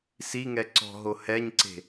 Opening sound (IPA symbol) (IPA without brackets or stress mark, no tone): s